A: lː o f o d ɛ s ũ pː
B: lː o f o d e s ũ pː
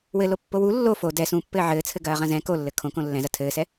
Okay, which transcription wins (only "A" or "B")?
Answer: A